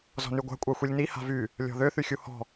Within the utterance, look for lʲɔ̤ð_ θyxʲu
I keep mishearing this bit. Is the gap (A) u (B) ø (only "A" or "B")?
B